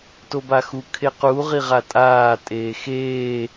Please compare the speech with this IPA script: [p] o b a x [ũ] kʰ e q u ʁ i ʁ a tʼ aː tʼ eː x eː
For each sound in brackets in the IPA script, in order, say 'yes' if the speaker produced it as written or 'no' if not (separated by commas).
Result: no, no